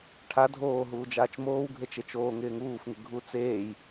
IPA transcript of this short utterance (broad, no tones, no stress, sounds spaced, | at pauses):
ʈʰ a dʱ oː ɦ uː d͡ʒ aː t͡ʃ m oː w ɡʱ e t͡ʃ e t͡ʃ oː ŋ ɪː ŋ uː f ŋ ɪ ɡʱ u t͡s eː j